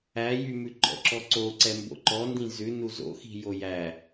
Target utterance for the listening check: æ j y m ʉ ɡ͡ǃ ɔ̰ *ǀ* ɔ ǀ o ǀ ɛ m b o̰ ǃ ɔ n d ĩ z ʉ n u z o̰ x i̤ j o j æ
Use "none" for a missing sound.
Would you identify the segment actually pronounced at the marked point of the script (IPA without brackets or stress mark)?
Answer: ǁ